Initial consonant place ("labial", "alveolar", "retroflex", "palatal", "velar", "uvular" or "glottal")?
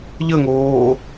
palatal